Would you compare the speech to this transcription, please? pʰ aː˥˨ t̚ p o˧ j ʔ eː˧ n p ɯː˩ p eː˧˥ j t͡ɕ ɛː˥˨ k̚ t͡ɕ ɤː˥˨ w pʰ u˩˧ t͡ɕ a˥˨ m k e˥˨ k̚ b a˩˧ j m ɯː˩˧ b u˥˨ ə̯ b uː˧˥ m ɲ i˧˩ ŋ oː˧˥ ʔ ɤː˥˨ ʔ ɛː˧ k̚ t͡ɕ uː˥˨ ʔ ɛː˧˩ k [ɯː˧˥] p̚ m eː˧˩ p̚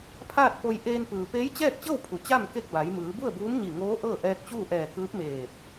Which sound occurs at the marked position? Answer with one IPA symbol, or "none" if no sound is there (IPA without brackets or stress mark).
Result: ɯː˧˥